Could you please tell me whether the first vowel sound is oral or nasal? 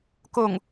oral